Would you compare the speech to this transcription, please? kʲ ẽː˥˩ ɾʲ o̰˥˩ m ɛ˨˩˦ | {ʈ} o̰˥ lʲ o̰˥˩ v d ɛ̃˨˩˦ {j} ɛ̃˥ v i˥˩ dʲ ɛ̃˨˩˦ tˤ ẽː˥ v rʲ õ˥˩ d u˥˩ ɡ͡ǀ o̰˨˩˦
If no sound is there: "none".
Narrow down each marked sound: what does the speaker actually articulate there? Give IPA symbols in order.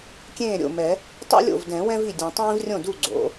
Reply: tˤ, w

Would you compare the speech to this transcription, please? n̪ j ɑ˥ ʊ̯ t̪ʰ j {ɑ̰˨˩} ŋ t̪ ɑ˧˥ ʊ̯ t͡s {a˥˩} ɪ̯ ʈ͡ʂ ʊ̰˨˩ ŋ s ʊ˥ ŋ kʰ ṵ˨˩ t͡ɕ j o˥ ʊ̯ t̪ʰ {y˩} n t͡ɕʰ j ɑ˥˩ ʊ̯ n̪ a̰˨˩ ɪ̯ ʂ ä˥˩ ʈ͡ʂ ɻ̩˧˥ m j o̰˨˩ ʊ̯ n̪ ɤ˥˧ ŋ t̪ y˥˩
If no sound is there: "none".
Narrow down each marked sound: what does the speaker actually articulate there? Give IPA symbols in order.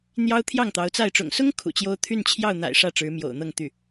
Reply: ɑ˥˩, a˥˩, y˥˧

